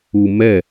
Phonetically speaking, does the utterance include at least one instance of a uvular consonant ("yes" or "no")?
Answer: no